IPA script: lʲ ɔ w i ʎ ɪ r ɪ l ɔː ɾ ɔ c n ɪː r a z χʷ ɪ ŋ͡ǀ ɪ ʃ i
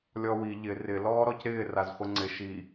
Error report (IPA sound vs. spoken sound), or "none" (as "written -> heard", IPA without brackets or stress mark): n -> ɾ